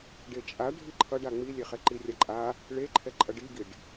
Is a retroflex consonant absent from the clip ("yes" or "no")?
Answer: no